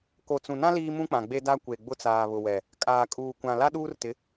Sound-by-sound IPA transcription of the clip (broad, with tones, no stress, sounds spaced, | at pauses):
k o˨ t͡s ũ˨ n ã˦ l iː˦ m ũ˦ k͡p ã˨ ɡ͡b e˦ d a˦ kʷ e˨ ɡ͡b ʊ˦ t͡s aː˨ β ʊ˨ w ɛ˨ | kʼ aː˨ kʼ uː˨ kʷ ã˨ l a˦ ɗ uː˦ r t ɪ˨˦